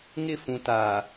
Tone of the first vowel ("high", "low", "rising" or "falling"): falling